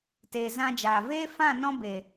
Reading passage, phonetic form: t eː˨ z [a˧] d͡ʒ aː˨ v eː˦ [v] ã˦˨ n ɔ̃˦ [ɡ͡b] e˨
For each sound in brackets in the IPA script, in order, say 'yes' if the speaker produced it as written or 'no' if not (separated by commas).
no, no, no